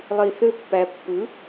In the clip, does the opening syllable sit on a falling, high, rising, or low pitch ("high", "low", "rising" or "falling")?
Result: low